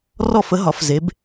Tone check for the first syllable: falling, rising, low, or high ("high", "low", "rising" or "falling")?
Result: falling